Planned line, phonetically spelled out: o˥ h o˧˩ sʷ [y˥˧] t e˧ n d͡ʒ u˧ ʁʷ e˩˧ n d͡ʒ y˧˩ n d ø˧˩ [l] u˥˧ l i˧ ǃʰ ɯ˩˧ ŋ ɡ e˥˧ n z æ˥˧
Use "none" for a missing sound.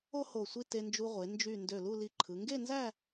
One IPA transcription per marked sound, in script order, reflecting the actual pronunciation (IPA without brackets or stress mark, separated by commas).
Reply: i˥˧, l